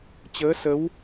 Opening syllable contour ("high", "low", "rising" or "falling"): rising